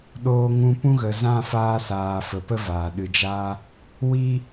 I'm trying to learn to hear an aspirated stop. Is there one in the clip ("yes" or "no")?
no